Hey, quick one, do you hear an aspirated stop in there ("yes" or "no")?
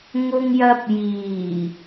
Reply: no